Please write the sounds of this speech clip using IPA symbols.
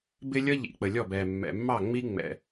bɪ˦lʲʌ˦ʎḭ˨ k͡pə˨lʲɔ˦˨bɛ˨ mːɛ̰˨mːɑ˦˨ŋ͡mi˦ ŋ͡mɛ̰˨

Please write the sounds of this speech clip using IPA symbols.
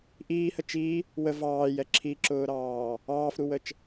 ʔiːhə t͡ʃi | wə vɑːjɛ ǁʰiǁʊːɾɑː | ɑːfɾuwət͡ʃ

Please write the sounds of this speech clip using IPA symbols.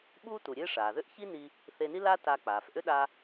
ɓuː˥tu˩ɾʲe˥ ʂaː˩ðʏ˥ʔçi˥ni˧ | θe˧ni˥la˥ ta˧k͡paː˩fʔʏ˥ ɗa˧

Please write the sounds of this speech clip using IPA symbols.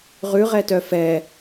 ʁʉʁɛtœ fɛ

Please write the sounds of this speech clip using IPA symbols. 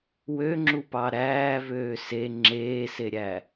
wøŋ͡ǁupɑ ɾæːvøː se ŋ͡ǁeːseɾʲæ

